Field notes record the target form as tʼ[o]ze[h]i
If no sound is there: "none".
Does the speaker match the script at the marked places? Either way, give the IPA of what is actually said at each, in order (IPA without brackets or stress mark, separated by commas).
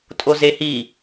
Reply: o, h